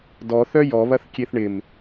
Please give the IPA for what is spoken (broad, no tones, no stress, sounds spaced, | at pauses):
d ɔ θ œ j ɔ β ɐ θ kʲ e θ ɳ ɪ m